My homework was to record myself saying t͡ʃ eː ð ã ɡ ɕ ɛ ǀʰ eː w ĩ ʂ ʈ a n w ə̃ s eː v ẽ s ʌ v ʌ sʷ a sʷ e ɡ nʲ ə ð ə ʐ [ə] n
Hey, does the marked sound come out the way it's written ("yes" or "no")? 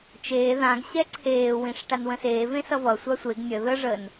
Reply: yes